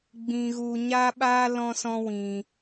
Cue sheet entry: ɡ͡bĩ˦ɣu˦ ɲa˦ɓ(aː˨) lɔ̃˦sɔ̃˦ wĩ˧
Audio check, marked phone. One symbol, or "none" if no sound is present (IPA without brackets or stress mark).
aː˦